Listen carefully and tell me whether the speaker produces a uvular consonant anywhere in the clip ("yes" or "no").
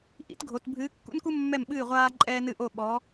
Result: yes